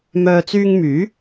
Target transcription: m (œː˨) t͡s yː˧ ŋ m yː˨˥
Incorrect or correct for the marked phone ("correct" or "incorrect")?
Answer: correct